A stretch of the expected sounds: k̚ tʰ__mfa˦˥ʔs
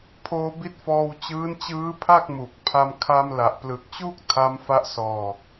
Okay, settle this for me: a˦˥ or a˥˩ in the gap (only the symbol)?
a˦˥